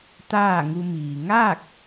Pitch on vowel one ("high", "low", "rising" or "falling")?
falling